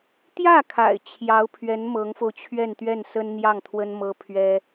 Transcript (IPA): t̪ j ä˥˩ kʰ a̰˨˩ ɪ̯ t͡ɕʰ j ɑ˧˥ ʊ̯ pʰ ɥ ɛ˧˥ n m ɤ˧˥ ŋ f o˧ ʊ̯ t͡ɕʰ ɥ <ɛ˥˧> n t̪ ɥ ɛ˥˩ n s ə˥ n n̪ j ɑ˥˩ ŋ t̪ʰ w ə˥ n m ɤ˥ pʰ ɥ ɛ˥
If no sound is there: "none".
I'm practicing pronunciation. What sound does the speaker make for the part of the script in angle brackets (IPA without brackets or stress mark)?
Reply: ɛ˥˧